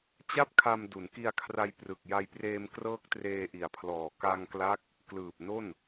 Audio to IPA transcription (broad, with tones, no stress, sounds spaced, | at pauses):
t͡ɕ a˥˩ p̚ kʰ a˧ m d u˩˦ n k i˧ a̯ kʰ r a˧ j p r ɯ˨˩ k̚ j a˧ j p r eː˧ m k r ɤː˦˥ k̚ t r eː˧ ʔ i˨˩ a̯ pʰ l ɔː˨˩ k a˧ ŋ k l a˦˥ k̚ | k l ɯː˨˩ p̚ n o˥˩ n